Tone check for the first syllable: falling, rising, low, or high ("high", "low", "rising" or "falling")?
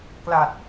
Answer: low